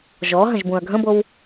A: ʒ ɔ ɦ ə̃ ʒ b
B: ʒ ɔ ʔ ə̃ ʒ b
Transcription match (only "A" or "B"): A